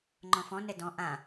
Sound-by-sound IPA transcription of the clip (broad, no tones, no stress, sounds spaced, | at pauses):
ŋ͡ǃ ɔ̃ f ɔ̃ n ɛ d ɔ̃ ʔ ã